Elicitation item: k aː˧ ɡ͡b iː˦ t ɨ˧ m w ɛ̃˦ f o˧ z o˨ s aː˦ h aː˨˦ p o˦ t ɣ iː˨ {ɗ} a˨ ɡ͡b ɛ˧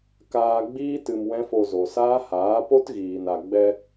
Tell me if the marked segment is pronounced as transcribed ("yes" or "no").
no